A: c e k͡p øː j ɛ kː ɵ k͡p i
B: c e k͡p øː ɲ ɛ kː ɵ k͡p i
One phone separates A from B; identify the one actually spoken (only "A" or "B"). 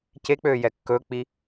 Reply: A